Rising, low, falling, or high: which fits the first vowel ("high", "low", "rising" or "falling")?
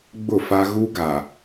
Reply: falling